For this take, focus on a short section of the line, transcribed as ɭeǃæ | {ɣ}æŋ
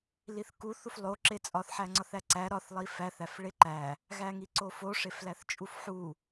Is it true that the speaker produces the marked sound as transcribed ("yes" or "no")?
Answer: yes